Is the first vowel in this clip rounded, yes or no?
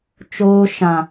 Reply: yes